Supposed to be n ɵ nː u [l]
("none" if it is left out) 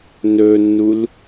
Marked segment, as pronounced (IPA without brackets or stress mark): l